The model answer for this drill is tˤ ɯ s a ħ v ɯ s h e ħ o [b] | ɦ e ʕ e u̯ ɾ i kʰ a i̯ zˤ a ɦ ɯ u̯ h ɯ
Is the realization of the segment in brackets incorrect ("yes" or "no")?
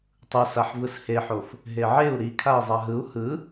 yes